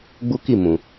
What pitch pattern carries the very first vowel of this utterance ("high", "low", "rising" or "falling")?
high